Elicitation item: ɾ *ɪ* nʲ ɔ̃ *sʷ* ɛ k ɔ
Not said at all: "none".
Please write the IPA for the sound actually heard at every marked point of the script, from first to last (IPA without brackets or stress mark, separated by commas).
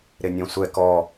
ɪ, sʷ